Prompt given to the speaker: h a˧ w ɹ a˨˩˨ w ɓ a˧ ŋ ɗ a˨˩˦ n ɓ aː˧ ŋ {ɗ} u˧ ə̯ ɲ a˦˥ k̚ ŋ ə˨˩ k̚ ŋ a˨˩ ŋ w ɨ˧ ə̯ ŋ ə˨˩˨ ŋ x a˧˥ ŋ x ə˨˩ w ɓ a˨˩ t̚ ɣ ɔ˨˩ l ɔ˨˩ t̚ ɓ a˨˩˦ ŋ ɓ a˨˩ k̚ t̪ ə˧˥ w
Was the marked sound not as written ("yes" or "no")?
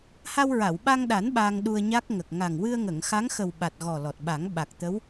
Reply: no